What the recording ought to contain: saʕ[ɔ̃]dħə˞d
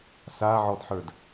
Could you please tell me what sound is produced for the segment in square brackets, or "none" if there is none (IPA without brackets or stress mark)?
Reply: ɔ